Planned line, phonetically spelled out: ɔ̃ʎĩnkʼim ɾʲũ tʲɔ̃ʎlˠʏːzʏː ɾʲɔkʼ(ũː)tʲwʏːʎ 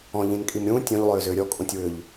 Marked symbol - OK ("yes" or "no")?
no